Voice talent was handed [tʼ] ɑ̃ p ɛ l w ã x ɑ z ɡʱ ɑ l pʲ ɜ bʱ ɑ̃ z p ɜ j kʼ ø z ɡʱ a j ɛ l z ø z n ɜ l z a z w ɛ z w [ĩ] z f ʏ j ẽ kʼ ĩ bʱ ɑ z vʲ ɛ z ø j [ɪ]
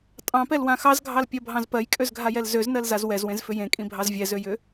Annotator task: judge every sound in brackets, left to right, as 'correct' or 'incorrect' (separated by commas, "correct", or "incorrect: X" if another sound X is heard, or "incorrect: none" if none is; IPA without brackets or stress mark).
correct, incorrect: ẽ, incorrect: ʏ